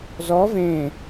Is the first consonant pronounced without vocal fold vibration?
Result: no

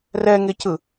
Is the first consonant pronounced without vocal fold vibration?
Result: no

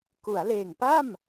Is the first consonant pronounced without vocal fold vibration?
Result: yes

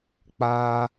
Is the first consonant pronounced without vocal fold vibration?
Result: yes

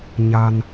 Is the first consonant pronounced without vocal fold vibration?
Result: no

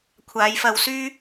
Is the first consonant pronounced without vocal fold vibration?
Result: yes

